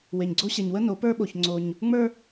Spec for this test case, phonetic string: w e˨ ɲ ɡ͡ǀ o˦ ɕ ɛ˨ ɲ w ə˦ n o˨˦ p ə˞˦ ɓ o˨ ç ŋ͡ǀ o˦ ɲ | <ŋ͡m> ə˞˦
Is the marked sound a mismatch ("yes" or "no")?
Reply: no